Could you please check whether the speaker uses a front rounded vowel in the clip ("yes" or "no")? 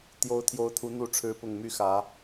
yes